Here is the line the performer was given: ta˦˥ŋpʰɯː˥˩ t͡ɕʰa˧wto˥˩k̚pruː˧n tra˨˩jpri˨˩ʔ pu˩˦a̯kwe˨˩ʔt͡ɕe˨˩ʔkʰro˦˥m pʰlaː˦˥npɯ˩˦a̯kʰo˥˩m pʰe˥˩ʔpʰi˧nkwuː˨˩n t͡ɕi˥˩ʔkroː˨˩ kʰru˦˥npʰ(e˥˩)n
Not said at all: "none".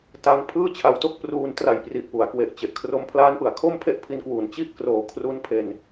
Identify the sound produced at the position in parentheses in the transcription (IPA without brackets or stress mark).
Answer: e˧